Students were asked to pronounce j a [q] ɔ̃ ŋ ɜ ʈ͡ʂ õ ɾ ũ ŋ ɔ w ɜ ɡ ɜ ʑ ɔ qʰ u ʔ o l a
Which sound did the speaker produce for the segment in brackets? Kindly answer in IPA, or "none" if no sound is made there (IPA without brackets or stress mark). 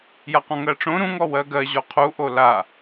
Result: q